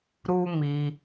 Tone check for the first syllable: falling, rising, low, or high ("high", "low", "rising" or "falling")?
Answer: high